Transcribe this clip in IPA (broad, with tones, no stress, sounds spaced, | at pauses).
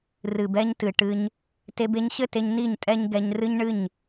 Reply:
r ɨ˨ b ɛ˧ ɲ t ɨ˨ ʈ ɨ˧ ɲ | t e˧ b e˧ ɲ ɕ ɘ˦˨ t e˧ ɲ n i˦˨ ɲ tʼ ɛ˦ ɲ ɡ ɛ˧ ɲ r ɨ˦ ɲ ɳ ɨ˦˨ ɲ